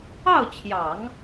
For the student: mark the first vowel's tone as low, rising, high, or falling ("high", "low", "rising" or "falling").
falling